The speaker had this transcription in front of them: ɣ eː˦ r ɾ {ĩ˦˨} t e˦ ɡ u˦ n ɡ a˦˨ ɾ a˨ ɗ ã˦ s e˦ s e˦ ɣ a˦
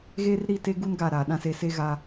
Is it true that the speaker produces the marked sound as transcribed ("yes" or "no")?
no